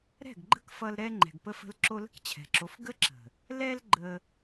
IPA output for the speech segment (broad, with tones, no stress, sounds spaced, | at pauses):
ɾ ɛ̤˦˨ ɡ ɡ͡ǃ ə̤˦ k f ʌ˧ l ɾ ɛ˦ ŋ͡ǃ ɛ̤˨ ɡ p ə˧ f ə̤˧ l ǁ o˧ l ə̤˦ k t͡ɕʰ ɛ̤˨ ǁ o˨˦ f ɡ ə˦ ǁ ə̤˨ | l ɛ˧ l ɡ͡ǃ ə˧